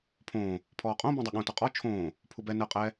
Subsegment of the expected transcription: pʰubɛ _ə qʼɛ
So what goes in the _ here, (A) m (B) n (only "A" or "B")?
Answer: B